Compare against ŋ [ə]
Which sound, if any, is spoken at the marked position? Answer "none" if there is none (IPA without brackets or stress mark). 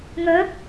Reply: ə